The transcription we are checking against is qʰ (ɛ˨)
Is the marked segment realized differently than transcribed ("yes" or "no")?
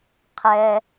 no